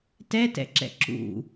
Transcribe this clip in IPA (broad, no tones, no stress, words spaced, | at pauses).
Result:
tɛtɛ̰ǁɛ̰ ǁṵ